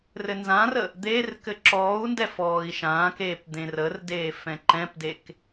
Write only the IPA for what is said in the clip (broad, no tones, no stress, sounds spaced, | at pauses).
r ɘ n z ã r ə | d̪ eː r k ɘ ǁ ɔː u̯ n d ɛ f ɔː i̯ ʃ ãː k eː p d̪ ẽ r ə r d eː f ɛ̃ ǃ ɛ̃ p d e k